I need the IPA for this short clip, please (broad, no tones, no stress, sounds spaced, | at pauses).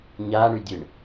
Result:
ɲ a ɳ y dʲ ɨ ɳ